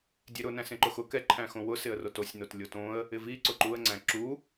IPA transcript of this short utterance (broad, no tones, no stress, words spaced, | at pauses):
dʲeɾʊ næ̃sẽǃʊxʊ kɛ ǃʰæ̃xõwʊ sɪə̯rotosʲ notlʲotõə̯ | ɪvi ǀʊǃuə̯ ŋ͡ǀæ̃ǁu